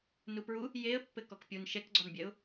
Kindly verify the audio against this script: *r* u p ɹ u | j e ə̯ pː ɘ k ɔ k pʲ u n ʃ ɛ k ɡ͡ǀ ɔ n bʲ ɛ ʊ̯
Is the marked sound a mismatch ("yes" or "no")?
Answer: yes